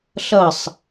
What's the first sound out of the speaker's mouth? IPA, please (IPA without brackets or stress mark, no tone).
ɬ